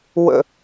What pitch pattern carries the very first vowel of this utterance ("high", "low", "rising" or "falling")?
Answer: high